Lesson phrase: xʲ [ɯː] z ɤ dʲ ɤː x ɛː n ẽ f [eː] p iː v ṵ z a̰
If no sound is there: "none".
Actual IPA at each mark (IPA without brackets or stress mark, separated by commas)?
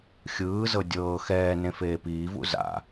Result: ɯː, eː